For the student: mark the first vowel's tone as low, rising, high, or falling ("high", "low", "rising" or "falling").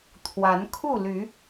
rising